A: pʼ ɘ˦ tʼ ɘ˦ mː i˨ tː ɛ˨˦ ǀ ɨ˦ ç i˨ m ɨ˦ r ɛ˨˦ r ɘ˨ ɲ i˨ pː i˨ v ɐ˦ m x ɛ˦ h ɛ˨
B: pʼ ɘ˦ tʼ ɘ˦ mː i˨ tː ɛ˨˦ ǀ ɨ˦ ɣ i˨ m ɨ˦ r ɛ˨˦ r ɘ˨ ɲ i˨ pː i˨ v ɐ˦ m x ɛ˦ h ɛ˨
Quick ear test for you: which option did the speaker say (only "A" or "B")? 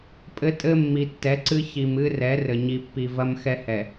A